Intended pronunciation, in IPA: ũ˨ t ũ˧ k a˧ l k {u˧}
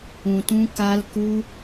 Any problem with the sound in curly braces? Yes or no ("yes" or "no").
no